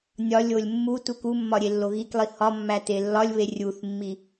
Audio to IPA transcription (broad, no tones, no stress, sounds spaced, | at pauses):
nʲ ɒ lʲ o lʲ mː u t u k u mː ɒ ɾʲ e lː o ɣ i k lˠ i h ɒ mː æ t e lː ɒ lʲ β e rʲ u θ mː i